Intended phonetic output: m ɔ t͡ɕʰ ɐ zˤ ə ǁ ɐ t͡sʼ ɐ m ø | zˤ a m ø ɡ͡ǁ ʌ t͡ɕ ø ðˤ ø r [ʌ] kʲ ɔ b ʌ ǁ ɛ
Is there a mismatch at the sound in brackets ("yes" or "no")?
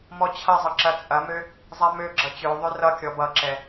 no